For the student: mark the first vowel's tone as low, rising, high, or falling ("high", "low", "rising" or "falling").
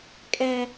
high